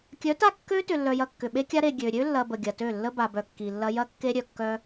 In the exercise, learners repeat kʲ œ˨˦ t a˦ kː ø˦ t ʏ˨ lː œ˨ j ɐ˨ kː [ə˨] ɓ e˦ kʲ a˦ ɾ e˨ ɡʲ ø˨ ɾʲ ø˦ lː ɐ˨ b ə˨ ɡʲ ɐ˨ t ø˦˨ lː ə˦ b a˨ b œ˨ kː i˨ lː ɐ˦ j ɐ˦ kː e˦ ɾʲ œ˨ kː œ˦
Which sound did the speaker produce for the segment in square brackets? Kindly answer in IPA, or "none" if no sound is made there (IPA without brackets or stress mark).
ʏ˨